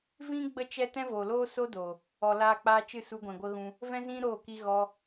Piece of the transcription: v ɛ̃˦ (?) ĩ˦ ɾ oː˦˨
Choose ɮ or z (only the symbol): z